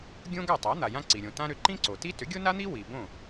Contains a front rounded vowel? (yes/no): yes